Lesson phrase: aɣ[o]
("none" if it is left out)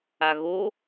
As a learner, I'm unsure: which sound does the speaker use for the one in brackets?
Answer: o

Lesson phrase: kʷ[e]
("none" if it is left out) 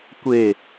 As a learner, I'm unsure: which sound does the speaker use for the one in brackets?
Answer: e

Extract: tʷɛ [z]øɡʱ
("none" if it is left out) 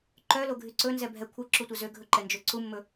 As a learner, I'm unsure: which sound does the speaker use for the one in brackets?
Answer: z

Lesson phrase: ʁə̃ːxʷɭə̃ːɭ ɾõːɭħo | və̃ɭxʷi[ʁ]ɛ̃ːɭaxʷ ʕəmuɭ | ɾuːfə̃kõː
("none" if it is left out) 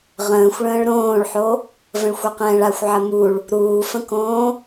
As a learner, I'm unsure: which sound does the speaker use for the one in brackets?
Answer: q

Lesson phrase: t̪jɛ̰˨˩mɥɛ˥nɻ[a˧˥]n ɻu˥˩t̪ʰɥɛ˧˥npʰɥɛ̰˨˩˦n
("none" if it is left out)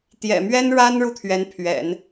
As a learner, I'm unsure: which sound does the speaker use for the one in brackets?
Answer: a˥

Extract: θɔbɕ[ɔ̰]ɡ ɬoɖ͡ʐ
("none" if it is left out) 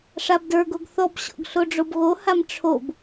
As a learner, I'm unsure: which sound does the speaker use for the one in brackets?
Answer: ɔ̰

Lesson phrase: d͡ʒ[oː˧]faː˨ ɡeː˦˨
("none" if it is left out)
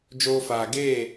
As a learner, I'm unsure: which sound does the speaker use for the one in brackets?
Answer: oː˧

